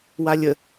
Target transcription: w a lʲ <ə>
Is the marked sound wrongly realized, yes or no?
no